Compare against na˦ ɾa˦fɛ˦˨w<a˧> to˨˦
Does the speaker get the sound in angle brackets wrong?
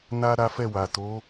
yes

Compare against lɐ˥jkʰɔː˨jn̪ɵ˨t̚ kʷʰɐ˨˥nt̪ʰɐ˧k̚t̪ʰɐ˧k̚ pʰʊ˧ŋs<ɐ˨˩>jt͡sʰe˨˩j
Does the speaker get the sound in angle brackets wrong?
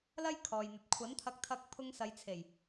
yes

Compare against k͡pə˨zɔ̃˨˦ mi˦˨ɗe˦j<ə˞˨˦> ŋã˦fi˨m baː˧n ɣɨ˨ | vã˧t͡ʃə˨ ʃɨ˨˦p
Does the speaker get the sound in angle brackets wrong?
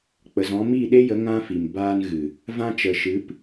yes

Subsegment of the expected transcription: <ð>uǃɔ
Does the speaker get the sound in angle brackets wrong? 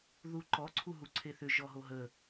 no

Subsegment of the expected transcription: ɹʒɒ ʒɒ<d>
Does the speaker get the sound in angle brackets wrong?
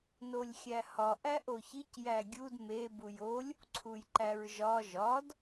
no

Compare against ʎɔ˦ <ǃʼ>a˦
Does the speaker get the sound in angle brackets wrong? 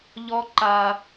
yes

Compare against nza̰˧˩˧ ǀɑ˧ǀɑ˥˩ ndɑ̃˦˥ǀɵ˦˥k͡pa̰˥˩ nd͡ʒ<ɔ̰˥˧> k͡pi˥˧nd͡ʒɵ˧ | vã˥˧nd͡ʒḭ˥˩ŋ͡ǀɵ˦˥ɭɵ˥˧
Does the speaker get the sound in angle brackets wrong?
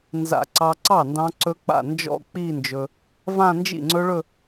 no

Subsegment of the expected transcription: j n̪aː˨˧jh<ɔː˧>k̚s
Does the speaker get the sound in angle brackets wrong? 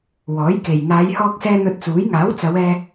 no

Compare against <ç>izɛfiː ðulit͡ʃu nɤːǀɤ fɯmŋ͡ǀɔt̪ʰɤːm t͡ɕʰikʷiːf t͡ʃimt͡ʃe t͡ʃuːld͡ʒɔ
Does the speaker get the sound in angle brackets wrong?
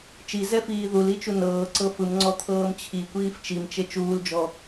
yes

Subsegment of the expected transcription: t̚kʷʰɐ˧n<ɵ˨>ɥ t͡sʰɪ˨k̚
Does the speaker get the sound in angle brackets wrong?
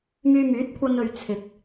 no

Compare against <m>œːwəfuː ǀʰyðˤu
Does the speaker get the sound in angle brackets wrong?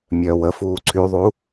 yes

